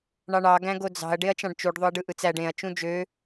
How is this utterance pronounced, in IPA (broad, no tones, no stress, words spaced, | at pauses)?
ɳɑɳɑ ɡæ̃ɡod͡zɑ̤ɐ̯ ɖeɐ̯t͡ʃɑ̃ɖt͡ʃuɖ ðˤoɐ̯ɖɯʔɯt͡sæɖ ẽɐ̯ t͡ʃũd͡ʒø